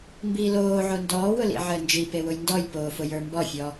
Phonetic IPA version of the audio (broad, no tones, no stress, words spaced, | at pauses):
mbiːloːʕo ndɔːwʊ lḭʕəːnd͡ʒipe wʊjndɔjpoː fʊjə˞mbɔfʲɔ